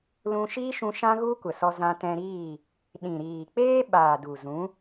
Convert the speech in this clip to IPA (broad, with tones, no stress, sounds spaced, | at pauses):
l ũ˧ ʃ iː˦ ʃ ũ˧ ʃ ã˦ ɣ u˦ kʷ ə˨ s ɔ˧ z ã˧ t ɛ̃˧ ɾ iː˦˨ | ɗ ĩ˨ ɾ iː˨ k͡p eː˦ ɓ aː˨ d u˨ z ũ˨˦